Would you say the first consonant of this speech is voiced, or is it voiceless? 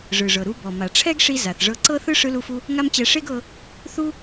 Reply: voiced